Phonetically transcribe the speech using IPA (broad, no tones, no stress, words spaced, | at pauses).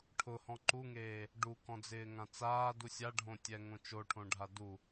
ʈʰʊhɔ̃ ǃuŋeː | ɖukɔ̃d͡zɪːŋã t͡saːdu sʲaɖʱõtʲɛŋõ t͡ʃoʈʰõɖʱa du